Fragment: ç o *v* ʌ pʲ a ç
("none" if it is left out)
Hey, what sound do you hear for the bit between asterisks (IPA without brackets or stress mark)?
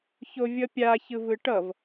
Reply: vʲ